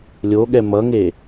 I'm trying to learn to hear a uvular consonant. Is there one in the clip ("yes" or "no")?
no